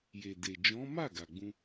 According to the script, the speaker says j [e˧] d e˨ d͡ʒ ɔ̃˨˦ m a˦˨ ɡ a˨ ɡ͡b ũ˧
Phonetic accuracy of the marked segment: incorrect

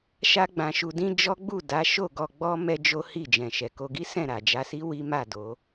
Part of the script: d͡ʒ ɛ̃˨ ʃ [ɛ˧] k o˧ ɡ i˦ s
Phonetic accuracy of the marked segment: incorrect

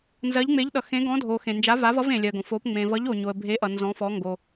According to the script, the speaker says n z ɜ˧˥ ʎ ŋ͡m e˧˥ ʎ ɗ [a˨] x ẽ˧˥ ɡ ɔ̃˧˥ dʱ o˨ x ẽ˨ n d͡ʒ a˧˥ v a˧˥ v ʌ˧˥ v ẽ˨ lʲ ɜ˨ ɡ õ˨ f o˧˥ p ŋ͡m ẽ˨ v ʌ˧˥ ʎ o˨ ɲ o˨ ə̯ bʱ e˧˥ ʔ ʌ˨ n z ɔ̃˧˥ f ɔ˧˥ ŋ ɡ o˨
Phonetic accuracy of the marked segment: incorrect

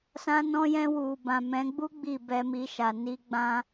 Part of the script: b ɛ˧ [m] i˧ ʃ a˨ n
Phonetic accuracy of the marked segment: correct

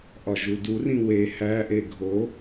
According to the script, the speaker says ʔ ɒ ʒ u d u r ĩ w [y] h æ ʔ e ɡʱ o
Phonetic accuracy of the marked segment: incorrect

